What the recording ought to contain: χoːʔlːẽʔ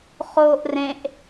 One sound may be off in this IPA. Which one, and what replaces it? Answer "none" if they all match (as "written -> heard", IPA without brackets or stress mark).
lː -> r